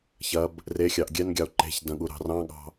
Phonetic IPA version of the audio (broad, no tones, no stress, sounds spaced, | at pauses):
ç ɐ b | r e xʲ ɑ ʔ ɡʲ ɛ n ɡʲ ɑ o̯ ǃ e̤ ç d ɐ̃ ɠ u ɾ ɑ̤ r ɑ̃ ɠ ɑ̤